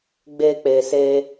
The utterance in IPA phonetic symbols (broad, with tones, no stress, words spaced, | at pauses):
ɡ͡be˧k͡pe˨se˧